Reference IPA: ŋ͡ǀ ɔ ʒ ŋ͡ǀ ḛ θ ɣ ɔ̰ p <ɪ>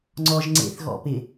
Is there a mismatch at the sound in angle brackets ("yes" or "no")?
no